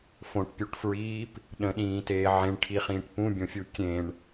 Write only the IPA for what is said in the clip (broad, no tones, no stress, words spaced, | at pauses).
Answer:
fõʈpʲuʈfɹiːp | ɗə̃ɗĩːteː ʕẽɳʈʰiχĩːʈ pũbʲõfʲu kʲẽɳ